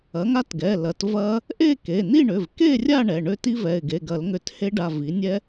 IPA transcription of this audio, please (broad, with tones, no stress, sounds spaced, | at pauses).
ɐ˩˥ ŋ a˦˥ t ɡ ɛ˩˧˩ l ɐ˩˥ t v ɐ˦˥ | ʔ e˥˨ k e˩˧˩ n i˥˨ ɳ ʏ˩˧˩ v k e˥˨ rʲ a˥˨ ɳ ɛ˩˧˩ ɳ ʏ˦˥ t i˦˥ v ɛ˩˧˩ ɪ̯ ɡ e˩˧˩ ɡ ɐ˨˩˦ l ŋ ʏ˨˩˦ t h e˦˥ ɖ a˩˧˩ v i˩˥ nʲ ɛ˦˥